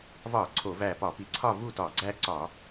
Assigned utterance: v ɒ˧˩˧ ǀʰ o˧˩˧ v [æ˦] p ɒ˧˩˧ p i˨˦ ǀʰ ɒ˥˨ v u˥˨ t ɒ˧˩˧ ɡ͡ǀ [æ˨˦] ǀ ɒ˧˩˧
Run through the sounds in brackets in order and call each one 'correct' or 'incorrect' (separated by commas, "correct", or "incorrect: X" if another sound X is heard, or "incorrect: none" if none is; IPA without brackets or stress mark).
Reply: incorrect: æ˧˩, incorrect: æ˦